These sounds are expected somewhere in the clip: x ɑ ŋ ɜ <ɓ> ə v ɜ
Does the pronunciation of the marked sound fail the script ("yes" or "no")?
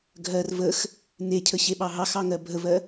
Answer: yes